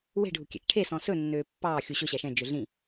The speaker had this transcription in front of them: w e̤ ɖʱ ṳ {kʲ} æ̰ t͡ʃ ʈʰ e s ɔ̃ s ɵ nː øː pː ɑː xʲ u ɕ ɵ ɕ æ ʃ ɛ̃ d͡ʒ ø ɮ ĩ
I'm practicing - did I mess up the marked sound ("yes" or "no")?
no